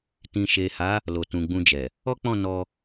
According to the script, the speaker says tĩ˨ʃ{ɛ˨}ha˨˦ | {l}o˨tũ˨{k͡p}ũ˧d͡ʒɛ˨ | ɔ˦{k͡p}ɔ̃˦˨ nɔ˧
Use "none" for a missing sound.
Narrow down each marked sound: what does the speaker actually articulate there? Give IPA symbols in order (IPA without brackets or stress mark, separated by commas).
e˨, l, ɡ͡b, k͡p